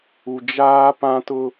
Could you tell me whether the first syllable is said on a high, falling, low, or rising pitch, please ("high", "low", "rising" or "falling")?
low